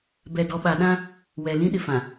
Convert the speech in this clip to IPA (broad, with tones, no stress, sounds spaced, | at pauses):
b ɛ˨ d ɔ˨ ɓ a˨ ɗ ã˦ | w ɛ˨ l ĩ˦ ɗ ɪ˨ f ã˨